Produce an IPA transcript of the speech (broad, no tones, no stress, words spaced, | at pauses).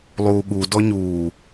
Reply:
lˠuːɠu dɔɲuː